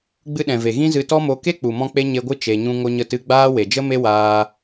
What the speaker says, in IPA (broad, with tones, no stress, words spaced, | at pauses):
ɡ͡bɨ˧ɗɛ̃˨ve˨ ɣĩ˦zɨ˧tɔ˦mo˧ ke˦k͡pu˨mɔ̃˧k͡pe˧ ɲe˧ɡʷɨ˦ t͡ʃe˧ɲũ˦ ŋo˧ɲə˧tɨ˧ ɡ͡baː˦ we˨d͡ʒə˦me˦ waː˧